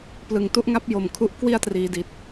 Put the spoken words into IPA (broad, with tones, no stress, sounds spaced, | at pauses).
p l ɯ˨˩ ŋ t u˥˩ ʔ ŋ a˦˥ p̚ j o˨˩ m kʰ u˦˥ ʔ k w i˥˩ a̯ t r iː˩˦ d i˨˩ t̚